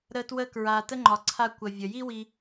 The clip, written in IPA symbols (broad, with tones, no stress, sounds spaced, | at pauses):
ɾ ə˧ t w ə˧ k ɹ a˨ t ə˦ ŋ͡ǃ ɒ˨ ǀʰ a˧ kʷ ə˨ vʲ ə˨ j i˦ w i˧